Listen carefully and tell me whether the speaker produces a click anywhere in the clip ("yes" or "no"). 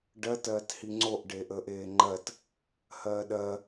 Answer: yes